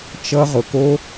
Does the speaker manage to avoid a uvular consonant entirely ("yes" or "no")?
no